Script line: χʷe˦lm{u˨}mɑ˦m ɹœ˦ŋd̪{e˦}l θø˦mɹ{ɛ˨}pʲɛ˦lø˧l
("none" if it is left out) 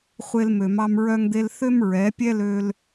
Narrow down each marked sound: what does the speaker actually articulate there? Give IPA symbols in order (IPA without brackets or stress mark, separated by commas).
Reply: ø˨, e˦, ɛ˨˦